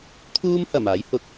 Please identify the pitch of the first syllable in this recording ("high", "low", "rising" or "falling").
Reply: high